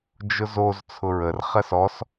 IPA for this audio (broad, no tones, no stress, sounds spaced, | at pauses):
d͡ʒ ʊ z o z t͡sʰ ʊ ɹ ə r χ ɜ s ɔ s